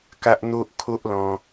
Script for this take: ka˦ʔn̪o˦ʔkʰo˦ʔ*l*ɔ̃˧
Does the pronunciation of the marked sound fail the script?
no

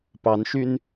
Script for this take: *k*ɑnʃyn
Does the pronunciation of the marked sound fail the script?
yes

